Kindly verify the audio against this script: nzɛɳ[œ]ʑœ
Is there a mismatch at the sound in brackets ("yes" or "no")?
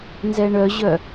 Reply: no